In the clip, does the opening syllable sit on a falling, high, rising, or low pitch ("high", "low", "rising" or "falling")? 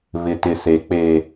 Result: low